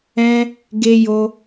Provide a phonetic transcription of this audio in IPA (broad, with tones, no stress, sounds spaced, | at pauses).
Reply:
ɛ̃˦ | ɡ e˦ j o˦